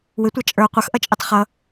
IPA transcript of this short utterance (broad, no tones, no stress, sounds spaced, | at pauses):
w ɪ tʷ ɑ t͡ʃʼ ə˞ qʷ ʌ x ʔ ʌ t͡ʃʼ i tˤ χ ʌ